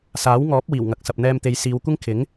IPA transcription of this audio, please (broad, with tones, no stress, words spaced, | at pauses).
saː˨˥wŋɔː˨˥p̚ wiː˨˩wŋɐ˨˥k̚sɐ˨p̚ n̪ɛː˧mt̪e˨˧jsiː˨˧w kʷɪ˥ŋkʰɪ˨˥ŋ